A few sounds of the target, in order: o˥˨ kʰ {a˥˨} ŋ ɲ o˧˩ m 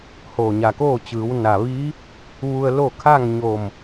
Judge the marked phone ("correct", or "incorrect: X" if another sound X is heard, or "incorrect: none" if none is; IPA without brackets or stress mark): correct